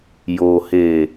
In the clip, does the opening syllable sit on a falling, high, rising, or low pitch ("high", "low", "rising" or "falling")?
low